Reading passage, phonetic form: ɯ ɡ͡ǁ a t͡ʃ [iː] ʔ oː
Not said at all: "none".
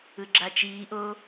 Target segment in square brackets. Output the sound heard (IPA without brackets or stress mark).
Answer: iː